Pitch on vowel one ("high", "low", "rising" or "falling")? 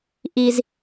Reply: low